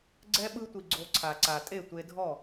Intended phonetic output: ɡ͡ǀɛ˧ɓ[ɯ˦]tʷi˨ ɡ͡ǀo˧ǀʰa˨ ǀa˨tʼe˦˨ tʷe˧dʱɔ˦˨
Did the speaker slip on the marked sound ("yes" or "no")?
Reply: yes